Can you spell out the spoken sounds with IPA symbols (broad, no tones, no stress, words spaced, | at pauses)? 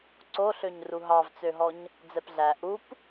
ǀoɬøɲ ruɦɑvt͡søɦɔɲ | d͡zɛpɮæ ʔup